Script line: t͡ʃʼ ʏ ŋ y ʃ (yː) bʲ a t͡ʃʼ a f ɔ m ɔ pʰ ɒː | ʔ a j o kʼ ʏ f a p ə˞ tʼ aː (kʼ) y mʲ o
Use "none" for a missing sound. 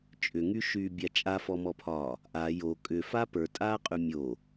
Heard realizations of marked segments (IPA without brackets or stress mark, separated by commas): yː, qʼ